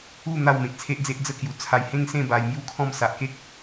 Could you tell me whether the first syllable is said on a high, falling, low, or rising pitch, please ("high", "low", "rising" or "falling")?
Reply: falling